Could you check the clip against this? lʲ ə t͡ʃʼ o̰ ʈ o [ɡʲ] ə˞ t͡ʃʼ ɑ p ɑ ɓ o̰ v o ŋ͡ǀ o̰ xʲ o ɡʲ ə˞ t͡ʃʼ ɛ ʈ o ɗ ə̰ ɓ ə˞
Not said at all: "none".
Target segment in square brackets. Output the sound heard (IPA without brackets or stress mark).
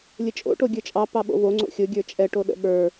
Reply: ɡʲ